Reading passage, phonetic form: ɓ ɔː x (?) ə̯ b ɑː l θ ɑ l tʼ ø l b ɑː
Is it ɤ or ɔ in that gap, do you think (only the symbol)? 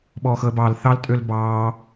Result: ɤ